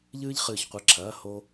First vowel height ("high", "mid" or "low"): high